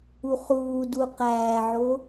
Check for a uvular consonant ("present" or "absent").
present